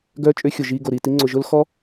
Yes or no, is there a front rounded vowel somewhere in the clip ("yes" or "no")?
yes